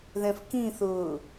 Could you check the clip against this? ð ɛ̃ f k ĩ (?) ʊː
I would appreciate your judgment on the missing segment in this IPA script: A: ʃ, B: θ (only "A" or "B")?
B